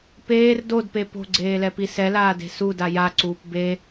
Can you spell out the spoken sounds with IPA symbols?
p eː r d o d p e p o̤ ɡ͡ǀ eː l ɛ p i s ɛ l aː d e̤ s u d a j a ǀ uː p b e

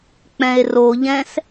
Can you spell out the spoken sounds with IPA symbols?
k͡p ɛ̃ e̯ r o ʎ ɛ̃ s

